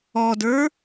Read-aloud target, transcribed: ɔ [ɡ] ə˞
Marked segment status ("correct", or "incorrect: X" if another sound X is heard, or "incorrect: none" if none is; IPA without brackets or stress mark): incorrect: d